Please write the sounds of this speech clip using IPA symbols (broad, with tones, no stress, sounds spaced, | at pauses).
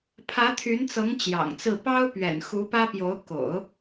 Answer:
pʰ ä˧˥ t̪ʰ y˧˥ n t͡s ɤ˧˥ ŋ t͡ɕ j ɑ̰˨˩ ŋ t͡s ɹ̩˥˩ p ɑ˥ ʊ̯ p ɥ ɛ̰˨˩ n x u˧˥ p ä˥ p j o˧˥ ʊ̯ k o̰˨˩˦ ʊ̯